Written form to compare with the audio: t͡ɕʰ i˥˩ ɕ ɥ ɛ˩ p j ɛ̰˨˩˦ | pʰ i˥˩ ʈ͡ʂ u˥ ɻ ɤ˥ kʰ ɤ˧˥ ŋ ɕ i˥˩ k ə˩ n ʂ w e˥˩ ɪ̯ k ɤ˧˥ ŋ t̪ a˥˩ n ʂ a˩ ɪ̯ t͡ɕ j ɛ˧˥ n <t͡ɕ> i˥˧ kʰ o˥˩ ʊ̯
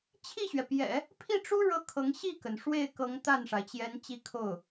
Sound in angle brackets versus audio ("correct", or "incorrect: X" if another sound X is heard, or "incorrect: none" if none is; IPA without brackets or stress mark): correct